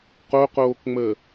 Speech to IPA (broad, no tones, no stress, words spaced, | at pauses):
qoqoːkŋ͡məː